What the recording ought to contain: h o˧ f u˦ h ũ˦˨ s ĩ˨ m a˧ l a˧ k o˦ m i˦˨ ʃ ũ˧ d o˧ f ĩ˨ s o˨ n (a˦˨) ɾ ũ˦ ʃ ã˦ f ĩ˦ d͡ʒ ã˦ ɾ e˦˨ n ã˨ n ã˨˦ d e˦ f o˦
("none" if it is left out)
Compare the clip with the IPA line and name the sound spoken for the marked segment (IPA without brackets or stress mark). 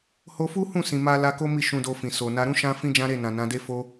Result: a˧